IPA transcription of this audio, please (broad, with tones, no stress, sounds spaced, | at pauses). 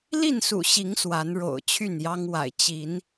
l i˥˨ n s ṵ˨˩ ɕ i˨˦ ŋ s w a˨˦ n ɻ o̰˨˩ ʊ̯ t͡ɕʰ y˥˨ n j ɑ˦ ŋ w a̰˨˩ ɪ̯ t͡ɕ i˨˦ n